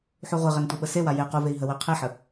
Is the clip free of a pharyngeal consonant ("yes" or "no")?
no